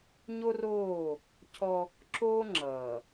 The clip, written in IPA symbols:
ɲ o˦ r oː˦˨ | cʰ ɔ˦ | ǁ oː˦ ŋ͡ǁ ʌː˨

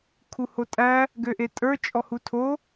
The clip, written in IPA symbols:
kʰ u h o tʼ æ | ɡ ø ʔ e tʼ ə˞ t͡ʃʼ ɔ h u tʰ o

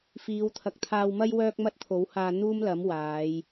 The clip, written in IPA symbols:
f iː˨˧ w t̪ʰ ɐ˨˥ k̚ t̪ʰ aː˧ w m ɐ˥ j w œː˥ k̚ m ɐ˥ t̚ t̪ʰ o˨˥ w h aː˧ n̪ uː˥ m l ɐ˨˥ m w aː˨˧ j

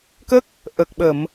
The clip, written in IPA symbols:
k ə˦˥ k̚ | ʔ ə˨˩ k̚ ɓ ə˨˩˨ m

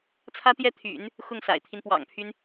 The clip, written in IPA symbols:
t͡sʰ ä˥ t̪ j ɛ˥ t̪ʰ y̰˨˩˦ n | x ʊ˥˩ ŋ s a̰˨˩ ɪ̯ t̪ʰ i˦ n p w ɑ̰˨˩ ŋ pʰ y˦ n

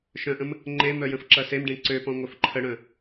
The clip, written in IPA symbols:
ʃ œ̃ ʔ ə̃ m | ŋ͡ǃ e m œ j ə̃ f ǁ ɐ s e m ɖ ẽ ǀ ø p ɔ̃ ŋʷ œ f ǃʰ ə ɽ œ̃

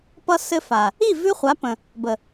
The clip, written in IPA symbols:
p ʌ˧ s ɘ˧ f a˨ | i˦˨ v ʉ˦ χʷ a˨˦ p ə̃˨ | b ə˨

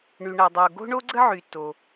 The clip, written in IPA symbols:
ɳ y˩ ɳ a˩ dˤ o˩ ɡ o̤˥ ɳ o˥ ɡ͡ǀ ə˥ ʕ y˩ t o˩

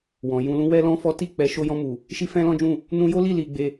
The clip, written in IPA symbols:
w ɔ̃˨ j ũ˧ l ũ˦ w ɛ˦ l ɔ̃˦ f ɔ˦ t i˦˨ k͡p ɛ˨˦ ʃ o˧ j ɔ̃˧ m u˨ | ʃ i˦ f ɛ̃˦ l ɔ̃˦ d͡ʒ ũ˦˨ | n ũ˧ j o˦ l i˦˨ l i˧ ɡ͡b e˧

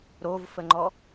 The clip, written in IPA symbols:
ɾ o v f ə ŋ͡ǃ ɔ

